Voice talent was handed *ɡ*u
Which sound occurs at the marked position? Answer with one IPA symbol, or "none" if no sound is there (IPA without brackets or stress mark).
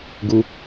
ɡ